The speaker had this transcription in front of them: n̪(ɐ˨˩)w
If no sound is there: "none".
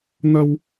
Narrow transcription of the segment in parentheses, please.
ɐ˧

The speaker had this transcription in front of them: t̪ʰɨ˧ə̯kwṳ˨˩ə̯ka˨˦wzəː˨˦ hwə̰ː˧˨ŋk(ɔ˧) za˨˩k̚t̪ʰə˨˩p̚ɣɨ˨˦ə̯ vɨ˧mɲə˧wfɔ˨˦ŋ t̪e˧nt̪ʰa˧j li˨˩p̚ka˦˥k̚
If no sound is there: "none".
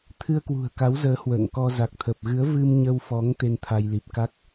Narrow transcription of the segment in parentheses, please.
ɔ˧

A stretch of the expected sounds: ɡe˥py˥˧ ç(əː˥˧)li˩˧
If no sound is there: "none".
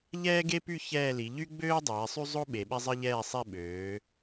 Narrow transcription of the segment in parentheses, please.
ɛː˥˧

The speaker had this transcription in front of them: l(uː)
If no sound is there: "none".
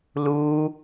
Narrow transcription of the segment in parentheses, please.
uː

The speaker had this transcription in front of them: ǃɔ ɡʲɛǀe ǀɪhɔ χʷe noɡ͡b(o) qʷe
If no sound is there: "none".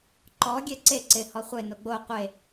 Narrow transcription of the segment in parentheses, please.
o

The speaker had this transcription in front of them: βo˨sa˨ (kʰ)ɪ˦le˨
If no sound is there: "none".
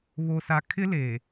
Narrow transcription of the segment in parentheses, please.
kʰ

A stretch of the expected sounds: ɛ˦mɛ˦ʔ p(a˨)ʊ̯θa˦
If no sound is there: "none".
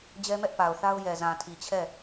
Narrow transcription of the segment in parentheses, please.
a˨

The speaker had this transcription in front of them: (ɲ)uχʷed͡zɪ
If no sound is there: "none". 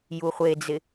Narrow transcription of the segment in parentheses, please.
j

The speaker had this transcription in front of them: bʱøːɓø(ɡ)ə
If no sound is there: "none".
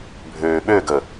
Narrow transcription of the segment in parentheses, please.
ɡ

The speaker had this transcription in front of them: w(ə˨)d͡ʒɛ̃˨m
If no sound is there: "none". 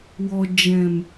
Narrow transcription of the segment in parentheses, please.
ɔ˨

